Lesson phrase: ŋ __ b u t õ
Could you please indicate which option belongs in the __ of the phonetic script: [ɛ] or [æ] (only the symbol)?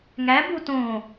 æ